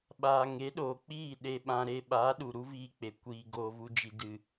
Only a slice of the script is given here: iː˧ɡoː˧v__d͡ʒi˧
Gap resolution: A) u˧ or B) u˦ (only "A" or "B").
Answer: B